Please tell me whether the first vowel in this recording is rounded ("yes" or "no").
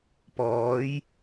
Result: yes